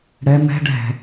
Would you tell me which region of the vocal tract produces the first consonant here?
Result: retroflex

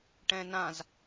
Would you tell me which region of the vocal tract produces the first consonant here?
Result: retroflex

